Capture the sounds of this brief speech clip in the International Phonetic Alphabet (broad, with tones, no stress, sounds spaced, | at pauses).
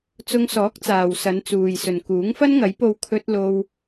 t͡s ʊ˧ ŋ s ɔː˨˥ k̚ t͡s aː˨ w s ɐ˨˧ n t͡s uː˨ j s ɵ˨ n k uː˨˥ ŋ f ɐ˥ n ŋ ɐ˨˥ j p o˧ w kʰ ɵ˥ t̚ l o˧ w